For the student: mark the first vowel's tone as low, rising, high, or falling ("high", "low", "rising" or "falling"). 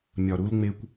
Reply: low